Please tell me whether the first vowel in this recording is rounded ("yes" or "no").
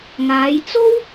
no